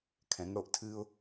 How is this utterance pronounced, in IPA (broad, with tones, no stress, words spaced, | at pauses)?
kʰɛ̃˩˧ŋɽo˩˧ʔtʰɨː˧ʊ̯